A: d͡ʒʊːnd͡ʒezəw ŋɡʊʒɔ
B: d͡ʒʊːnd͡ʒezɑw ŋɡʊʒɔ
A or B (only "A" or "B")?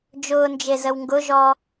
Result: A